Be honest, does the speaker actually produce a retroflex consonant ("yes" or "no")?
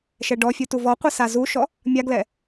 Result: yes